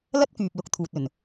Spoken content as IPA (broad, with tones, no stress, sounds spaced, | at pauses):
l ɐ˥ t̚ k yː˨ p̚ l ʊ˨˥ k̚ t̪ʰ uː˨ t̚ ɵ˨˩ n